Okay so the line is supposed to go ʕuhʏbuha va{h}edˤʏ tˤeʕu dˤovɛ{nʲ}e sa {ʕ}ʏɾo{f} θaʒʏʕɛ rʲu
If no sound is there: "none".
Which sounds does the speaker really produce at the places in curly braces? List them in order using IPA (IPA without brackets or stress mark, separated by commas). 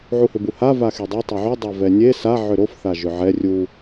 x, nʲ, ʕ, f